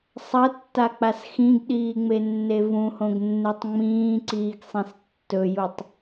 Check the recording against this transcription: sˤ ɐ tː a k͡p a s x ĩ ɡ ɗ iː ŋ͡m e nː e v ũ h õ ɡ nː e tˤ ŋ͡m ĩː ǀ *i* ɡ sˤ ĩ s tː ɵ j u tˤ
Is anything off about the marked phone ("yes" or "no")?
yes